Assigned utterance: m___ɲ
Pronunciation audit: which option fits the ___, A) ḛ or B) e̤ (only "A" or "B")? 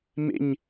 A